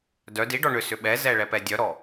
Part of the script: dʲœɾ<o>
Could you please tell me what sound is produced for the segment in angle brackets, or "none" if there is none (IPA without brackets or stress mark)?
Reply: ɔ